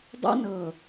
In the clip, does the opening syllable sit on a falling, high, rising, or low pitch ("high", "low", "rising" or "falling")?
high